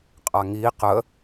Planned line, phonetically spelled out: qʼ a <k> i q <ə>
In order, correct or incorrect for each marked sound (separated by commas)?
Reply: incorrect, correct